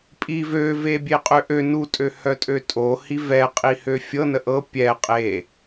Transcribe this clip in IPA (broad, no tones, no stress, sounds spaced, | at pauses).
pʼ i v ø v e bʲ e qʼ ø ʔ ø n u tʼ ø h œ tʼ ø tʼ o h i v ɛ qʼ i h ø fʲ ɤ n ə ʔ ɤ pʲ ɛ qʼ e